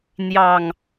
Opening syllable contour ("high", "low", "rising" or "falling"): low